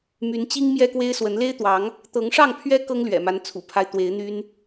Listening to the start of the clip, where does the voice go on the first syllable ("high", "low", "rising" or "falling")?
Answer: rising